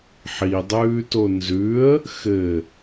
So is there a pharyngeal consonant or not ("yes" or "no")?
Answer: yes